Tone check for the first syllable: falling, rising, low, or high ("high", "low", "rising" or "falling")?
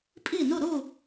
falling